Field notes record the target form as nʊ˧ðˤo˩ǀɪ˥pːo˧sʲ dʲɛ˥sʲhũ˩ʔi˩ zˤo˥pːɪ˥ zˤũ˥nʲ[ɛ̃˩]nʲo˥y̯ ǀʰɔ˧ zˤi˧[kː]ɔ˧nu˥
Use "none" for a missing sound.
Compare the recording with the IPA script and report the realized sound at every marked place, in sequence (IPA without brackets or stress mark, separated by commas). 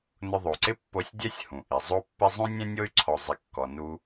ɛ̃˥, kː